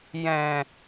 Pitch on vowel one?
low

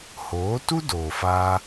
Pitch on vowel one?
rising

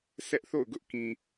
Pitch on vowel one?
high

